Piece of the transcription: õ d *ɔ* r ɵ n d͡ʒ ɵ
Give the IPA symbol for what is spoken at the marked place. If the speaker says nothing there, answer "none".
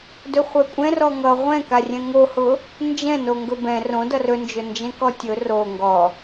ʌ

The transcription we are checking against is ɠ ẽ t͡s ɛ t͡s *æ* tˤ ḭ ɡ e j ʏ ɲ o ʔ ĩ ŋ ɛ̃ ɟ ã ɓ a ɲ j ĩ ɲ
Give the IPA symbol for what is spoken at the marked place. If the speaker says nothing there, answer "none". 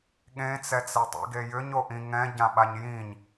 ɛ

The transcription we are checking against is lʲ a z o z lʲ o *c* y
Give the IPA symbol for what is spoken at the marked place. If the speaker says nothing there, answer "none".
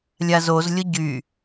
ɟ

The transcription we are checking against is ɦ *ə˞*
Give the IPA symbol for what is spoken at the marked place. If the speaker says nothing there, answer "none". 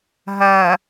ɜ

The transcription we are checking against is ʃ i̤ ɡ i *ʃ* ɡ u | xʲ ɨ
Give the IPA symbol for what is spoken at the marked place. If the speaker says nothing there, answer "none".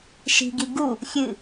none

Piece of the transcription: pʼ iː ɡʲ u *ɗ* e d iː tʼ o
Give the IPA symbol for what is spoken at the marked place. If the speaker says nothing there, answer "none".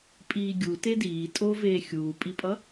t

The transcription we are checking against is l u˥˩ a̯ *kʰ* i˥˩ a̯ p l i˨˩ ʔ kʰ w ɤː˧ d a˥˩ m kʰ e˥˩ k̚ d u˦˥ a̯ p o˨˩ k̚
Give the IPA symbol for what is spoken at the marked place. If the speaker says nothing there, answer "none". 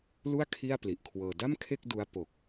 kʰ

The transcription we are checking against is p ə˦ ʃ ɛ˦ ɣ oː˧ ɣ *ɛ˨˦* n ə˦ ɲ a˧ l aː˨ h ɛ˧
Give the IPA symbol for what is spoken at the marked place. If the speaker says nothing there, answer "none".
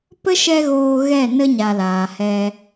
ɛ˦˨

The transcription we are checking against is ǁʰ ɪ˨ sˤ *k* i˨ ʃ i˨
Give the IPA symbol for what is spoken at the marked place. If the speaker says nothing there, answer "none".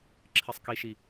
k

